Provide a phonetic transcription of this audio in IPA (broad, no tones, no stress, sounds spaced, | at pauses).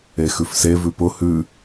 e x ʉ f s e v ʉ p ʊ h ʉ